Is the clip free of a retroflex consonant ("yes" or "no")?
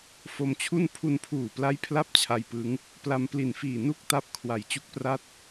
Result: yes